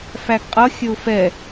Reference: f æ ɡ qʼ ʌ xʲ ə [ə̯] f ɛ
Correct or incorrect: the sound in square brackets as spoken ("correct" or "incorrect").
incorrect